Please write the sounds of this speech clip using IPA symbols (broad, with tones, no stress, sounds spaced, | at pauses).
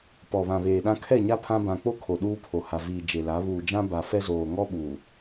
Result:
p ɔ˨ β ã˨ β eː˨ ɗ ã˦ kʰ ɛ˦˨ ɲ a˦ pʰ ã˦ b ã˨ k͡p o˦ kʰ o˨ ɗ uː˦ pʰ o˨ h a˨ v iː˨ d͡ʒ e˨ l a˨˦ β uː˨ d͡ʒ ã˦ b a˨ f ɛ˦ z oː˨ ŋ ɔ˦ ɓ uː˨